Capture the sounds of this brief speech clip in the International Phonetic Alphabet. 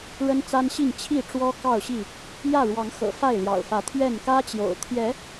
ɻə˦nt͡sa˦nɕi˥˨ŋ t͡ɕʰi˥˨ʈ͡ʂwɔ˦ kɑ˥˨ʊ̯ɕi˥˨ | jä˥˨ɻwɑ˨˦ŋxɤ̰˨˩ fa˥˨ɪ̯ljɑ̰˨˩ʊ̯fä˨˦ t̪ʰɥɛ˥˨n kä˦t͡ɕjo̰˨˩ʊ̯t̪ʰjɛ˨˦

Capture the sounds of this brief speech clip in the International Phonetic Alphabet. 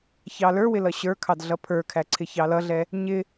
çɑlə˞wɪ lʌɕə˞kʰɑd ɮʌpʰə˞kʰæ ǀʰɪçɑlʌɮɛ | ɲɪ

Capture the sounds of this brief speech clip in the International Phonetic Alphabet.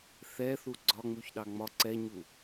θɛθu ɡ͡ǀɒŋ͡muçɗɑ ŋ͡mɒ ǀɛɲu

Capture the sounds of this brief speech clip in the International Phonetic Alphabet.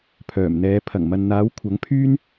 pʰœː˨˩mn̪ɛː˨˧ pʰɐ˨˩ŋmɐ˨nn̪aː˨˥w kʷʰɐ˨˥ŋpʰyː˥n

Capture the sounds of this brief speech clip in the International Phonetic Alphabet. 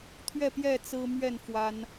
t̪ʰɥɛ˥˨pjɛ˥˨ t͡sɹ̩˦mɥɛ˥˨n fwa˦n

